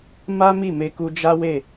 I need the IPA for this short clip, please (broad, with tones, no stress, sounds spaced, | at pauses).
m a˦ m i˦˨ m e˧ k u˧ d͡ʒ a˦ w e˦˨